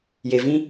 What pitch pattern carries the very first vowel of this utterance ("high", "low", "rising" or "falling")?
low